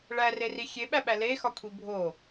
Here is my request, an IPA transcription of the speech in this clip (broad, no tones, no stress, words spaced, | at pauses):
ɭæreri xʲeɓæɓæ lexɒkʷʰi bʱo